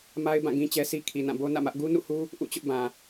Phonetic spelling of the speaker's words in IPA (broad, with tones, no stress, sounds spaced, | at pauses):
m a˦ ɪ̯ b ã˦˨ ɡ ĩ˦ t͡ɕ ɛ˦ s i˦ kʰ i˨ n ã˦˨ b o˦ n ä̰˦˨ m ä˦ ʔ ɡ u˦ n ṵ˦˨ h u˦ | ʔ ṵ˦˨ t͡ɕ ʊ˦ ʔ b ã˨